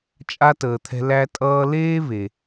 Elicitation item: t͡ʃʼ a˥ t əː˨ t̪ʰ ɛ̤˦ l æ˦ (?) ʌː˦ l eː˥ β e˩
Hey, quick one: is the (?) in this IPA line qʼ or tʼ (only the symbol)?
tʼ